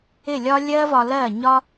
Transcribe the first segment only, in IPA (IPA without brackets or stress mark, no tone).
ɪ